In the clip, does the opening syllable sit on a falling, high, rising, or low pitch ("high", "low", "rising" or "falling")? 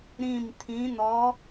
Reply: falling